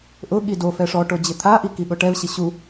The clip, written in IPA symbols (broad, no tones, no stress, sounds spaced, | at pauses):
ʔ ʊ ɠ i d o f ɛ ʂ ɔ ʈ o d͡ʑ ɪ t̪ʰ a ʔ i k i ɠ ʊ ʈ ɛ v ɕ ɪ ɕ u